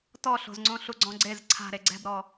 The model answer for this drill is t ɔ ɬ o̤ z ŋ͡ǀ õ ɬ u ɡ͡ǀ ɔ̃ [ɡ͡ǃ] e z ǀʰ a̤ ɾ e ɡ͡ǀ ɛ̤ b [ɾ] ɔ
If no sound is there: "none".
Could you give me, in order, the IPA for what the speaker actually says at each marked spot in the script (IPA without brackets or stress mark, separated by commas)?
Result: ɡ͡ǀ, ɾ